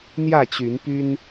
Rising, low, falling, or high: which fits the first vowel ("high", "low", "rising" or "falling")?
falling